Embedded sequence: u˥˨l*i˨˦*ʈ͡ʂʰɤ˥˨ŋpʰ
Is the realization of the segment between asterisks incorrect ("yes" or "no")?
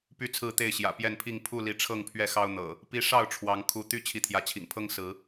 no